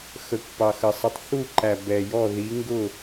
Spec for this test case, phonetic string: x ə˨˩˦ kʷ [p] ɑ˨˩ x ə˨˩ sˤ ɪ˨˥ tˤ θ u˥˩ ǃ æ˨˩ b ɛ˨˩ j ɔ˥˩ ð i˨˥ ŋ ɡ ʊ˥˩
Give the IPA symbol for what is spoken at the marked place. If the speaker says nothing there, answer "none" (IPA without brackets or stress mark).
p